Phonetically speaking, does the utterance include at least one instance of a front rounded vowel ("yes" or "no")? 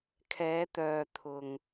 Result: yes